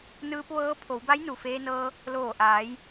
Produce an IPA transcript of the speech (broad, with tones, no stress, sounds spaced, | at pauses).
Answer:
n ɯː˧ p̚ ʋ ɤː˧˥ pʰ o˩˧ w b a˧˥ j n u˩ f eː˧ n ɤː˧ | l oː˧˩ ʔ aː˩˧ j